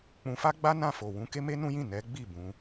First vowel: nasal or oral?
nasal